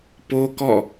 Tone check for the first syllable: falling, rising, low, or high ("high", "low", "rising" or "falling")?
high